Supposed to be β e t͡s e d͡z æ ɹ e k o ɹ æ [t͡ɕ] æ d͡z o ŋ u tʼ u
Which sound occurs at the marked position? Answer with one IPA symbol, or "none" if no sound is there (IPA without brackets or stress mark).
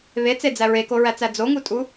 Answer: t͡s